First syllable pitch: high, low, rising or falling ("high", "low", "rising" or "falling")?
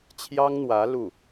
high